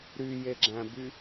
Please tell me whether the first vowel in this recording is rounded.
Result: yes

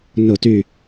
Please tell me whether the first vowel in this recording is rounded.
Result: yes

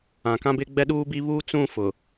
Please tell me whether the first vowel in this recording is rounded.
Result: no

